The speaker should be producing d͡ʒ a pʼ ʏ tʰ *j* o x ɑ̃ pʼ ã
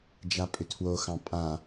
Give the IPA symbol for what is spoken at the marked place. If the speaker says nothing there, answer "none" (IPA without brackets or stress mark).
w